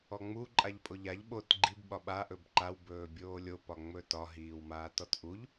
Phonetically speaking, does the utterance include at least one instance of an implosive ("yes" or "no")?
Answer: yes